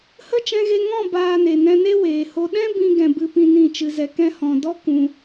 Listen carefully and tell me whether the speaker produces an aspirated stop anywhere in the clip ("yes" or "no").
no